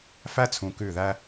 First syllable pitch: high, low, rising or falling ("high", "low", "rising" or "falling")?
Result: high